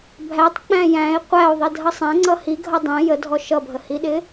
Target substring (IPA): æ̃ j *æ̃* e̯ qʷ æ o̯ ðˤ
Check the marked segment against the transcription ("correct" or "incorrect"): correct